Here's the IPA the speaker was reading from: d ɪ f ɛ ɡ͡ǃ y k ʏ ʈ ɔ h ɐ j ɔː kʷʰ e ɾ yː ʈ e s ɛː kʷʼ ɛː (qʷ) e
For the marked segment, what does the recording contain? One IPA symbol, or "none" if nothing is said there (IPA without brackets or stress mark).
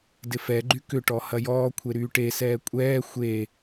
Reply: xʷ